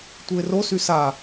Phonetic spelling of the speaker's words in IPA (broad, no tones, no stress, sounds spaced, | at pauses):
tʷ ɯ ɪ̯ r o s y s a